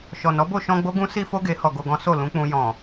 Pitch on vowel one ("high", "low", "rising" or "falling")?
low